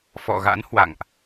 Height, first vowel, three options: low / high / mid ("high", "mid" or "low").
mid